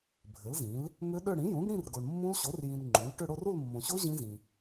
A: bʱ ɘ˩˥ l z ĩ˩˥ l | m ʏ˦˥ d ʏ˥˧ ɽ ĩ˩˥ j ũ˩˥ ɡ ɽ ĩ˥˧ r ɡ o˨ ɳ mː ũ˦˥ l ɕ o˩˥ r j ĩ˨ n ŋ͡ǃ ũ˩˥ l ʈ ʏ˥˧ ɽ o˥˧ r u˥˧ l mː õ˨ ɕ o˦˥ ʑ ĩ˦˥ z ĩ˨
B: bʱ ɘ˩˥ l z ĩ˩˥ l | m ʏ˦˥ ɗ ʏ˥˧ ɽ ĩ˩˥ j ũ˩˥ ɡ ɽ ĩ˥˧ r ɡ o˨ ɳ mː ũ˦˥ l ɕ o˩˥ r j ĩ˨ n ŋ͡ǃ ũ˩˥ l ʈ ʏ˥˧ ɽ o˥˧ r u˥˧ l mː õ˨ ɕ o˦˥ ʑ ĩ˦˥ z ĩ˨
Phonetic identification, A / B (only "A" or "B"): B